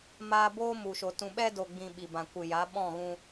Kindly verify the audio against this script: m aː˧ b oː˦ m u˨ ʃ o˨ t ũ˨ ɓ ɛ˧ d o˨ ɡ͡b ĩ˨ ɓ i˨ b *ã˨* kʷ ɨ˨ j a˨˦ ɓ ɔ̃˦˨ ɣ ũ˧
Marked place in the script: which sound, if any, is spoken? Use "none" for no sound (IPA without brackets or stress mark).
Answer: ã˨